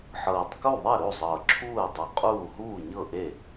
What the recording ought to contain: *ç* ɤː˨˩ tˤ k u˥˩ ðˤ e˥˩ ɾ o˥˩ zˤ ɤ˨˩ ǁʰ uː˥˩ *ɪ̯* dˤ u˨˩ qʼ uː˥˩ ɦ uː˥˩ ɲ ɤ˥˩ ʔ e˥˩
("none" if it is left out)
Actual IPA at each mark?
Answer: ħ, ə̯

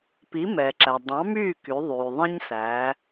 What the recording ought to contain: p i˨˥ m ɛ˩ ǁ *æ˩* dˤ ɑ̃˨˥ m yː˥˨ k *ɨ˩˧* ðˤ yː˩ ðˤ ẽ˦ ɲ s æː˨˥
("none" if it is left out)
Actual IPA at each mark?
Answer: æ˩, y˩˧

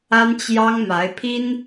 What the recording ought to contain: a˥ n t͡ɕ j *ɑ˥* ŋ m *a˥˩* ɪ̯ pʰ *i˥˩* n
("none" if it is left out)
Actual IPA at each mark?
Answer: ɑ˥, a˧˥, i˥

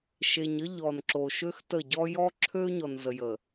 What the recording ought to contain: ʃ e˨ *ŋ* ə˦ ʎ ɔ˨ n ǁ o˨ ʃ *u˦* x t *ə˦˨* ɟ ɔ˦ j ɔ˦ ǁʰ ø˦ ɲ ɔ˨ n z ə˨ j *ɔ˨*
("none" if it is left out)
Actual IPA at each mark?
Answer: ɲ, ø˦, ə˦˨, ə˨

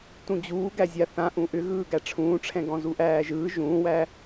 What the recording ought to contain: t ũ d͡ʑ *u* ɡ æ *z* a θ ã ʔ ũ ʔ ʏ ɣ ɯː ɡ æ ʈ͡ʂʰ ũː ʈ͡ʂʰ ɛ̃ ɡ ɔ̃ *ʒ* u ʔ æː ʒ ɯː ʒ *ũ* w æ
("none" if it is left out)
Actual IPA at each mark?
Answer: uː, zʲ, z, ũː

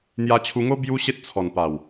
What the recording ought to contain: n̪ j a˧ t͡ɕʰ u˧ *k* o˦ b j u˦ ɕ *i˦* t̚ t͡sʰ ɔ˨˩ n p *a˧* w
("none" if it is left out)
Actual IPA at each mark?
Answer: ŋ, e˦, a˨˩

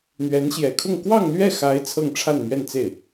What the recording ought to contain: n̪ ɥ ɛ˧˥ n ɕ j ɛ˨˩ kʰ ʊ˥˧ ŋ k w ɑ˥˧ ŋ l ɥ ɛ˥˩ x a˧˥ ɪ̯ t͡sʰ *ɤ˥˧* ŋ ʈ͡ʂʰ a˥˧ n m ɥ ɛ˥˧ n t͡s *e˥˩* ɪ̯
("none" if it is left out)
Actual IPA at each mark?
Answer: ɤ˥˧, e˥˩

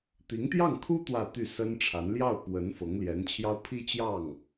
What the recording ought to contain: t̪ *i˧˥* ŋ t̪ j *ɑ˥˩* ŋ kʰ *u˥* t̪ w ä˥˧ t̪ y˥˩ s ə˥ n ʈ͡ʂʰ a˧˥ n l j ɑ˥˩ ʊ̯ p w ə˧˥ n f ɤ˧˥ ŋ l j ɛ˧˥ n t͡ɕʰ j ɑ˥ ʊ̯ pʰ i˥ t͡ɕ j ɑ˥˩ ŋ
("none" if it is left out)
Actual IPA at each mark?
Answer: i˧˥, ɑ˥˩, u˥

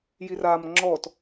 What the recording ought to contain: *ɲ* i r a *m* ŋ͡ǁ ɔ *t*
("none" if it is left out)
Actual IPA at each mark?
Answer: j, m, t

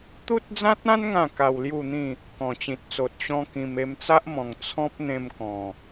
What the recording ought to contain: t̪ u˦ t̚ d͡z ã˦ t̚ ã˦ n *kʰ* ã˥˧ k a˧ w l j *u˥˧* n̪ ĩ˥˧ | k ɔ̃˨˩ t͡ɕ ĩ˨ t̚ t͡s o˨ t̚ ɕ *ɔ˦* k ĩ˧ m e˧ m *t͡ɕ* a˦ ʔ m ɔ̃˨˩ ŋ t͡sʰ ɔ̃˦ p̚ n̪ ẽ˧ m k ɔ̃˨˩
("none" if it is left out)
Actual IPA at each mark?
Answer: ŋ, u˥˧, ɔ̃˦, t͡s

